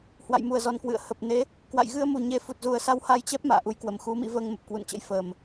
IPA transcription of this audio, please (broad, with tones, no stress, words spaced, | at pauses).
hwa̰˧˨jmu˧˩ə̯zɔ˨˩nkwɨ̰˧˨ə̯ hə˨˩p̚ne˨˦ | kwa̰˧˨jɣɨ˧ə̯mu˨˩ɲe˨˦ fu˨˩t̚zu˨˩ə̯sa˧w ha˧jt͡ɕɛ˦˥p̚ ma̰ː˧˨ʔu˨˦jkwə˨˩m xu˨˦mḭ˧˥ vəː˧ŋmə˨˩p̚kwṵ˧˨nt͡ɕə̰˧˥j fəː˨˩m